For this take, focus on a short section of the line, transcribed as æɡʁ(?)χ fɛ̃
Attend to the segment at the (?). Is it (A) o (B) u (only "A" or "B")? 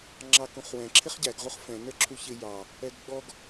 B